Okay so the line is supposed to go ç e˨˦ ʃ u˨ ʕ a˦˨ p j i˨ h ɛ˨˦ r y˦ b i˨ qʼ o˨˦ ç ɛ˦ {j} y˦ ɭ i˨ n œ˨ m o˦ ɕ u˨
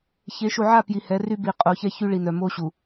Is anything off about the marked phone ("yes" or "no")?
yes